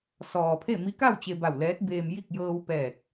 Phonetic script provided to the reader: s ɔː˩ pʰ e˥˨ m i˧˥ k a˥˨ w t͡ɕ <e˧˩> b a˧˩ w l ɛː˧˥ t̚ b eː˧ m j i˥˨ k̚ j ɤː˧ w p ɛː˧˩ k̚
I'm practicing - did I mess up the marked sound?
yes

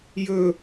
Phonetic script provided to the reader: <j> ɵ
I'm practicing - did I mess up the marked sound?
no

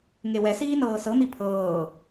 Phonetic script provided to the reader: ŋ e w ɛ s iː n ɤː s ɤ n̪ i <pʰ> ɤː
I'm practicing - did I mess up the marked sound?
no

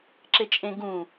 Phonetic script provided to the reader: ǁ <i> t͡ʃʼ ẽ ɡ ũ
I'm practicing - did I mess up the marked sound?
yes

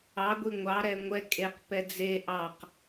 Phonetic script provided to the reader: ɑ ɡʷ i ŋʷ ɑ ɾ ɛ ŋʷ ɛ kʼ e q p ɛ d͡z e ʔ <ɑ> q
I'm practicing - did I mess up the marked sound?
no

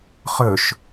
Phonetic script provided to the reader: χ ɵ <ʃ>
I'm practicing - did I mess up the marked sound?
no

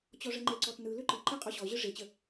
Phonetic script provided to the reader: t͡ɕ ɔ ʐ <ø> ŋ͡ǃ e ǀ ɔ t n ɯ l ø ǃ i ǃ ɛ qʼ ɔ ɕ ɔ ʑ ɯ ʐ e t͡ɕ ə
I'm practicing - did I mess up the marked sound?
yes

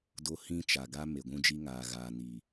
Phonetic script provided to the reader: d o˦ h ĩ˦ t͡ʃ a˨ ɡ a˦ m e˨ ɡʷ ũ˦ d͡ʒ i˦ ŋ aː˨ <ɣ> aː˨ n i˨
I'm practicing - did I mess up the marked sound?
no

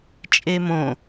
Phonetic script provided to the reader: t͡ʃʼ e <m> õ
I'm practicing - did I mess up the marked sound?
no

